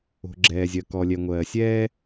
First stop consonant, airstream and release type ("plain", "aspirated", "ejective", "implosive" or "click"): click